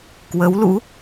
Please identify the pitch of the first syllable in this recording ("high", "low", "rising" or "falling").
rising